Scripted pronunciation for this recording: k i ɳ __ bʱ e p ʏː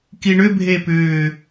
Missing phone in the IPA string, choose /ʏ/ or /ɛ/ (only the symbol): ʏ